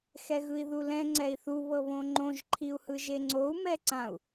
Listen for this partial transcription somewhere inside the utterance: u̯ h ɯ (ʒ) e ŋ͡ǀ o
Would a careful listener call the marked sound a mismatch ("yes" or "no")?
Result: no